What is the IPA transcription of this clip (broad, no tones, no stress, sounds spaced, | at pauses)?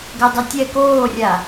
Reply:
ɡ ə dˤ i tʲ ɛ k oː rʲ a